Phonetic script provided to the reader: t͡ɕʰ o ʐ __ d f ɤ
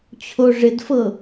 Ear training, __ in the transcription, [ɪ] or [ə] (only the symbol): ɪ